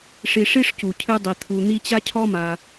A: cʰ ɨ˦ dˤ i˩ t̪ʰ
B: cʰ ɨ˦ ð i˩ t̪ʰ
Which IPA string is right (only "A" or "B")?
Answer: A